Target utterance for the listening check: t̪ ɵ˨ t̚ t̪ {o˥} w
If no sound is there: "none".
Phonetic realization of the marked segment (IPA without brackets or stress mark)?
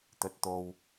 o˨